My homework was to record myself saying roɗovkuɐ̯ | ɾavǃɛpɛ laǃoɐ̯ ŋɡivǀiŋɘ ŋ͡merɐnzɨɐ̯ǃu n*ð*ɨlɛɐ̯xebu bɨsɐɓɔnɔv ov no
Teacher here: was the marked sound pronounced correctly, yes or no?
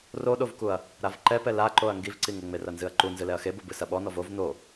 no